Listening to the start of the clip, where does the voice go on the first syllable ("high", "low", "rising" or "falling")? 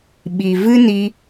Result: low